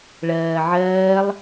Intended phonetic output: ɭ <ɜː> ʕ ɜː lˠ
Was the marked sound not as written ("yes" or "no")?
no